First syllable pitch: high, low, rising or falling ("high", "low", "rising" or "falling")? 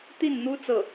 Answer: falling